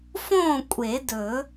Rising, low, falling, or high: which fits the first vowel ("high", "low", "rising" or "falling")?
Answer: falling